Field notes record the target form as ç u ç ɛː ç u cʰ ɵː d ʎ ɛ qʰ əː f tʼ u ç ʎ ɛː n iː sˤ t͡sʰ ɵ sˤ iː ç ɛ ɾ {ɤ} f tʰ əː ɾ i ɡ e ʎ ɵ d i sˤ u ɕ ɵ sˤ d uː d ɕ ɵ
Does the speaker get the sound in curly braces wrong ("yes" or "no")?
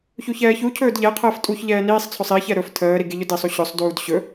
yes